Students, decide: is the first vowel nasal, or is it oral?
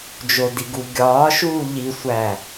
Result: oral